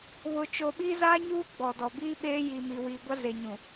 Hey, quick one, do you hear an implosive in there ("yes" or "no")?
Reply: yes